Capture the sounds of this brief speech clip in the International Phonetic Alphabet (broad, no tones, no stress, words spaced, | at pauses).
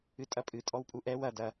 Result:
ɨtʼɐpʼɨ tʼɔwpʼuʔɛw ɐ dɐ